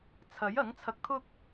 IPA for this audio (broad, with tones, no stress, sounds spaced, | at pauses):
t͡sʰ ɐ˨˥ j ɐ˨˥ ŋ t͡sʰ ɐ˧ k̚ t̪ʰ ʊ˥ k̚